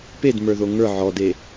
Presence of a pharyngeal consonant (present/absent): present